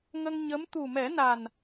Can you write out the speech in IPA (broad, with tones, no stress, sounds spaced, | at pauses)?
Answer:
ŋ ə˧ ŋ ɲ ə˧˥ m t̪ u˨˩ m ɛ˨˩˦ n a˨˩ n